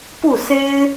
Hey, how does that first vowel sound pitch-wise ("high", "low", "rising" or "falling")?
falling